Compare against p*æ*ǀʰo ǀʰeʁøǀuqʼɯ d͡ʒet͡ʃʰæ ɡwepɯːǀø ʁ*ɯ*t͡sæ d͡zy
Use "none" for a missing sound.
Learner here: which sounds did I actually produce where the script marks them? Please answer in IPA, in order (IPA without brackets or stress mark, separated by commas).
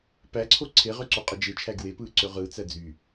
æ, ɯː